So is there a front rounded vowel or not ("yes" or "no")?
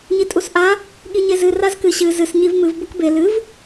no